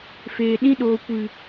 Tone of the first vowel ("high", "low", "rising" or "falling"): low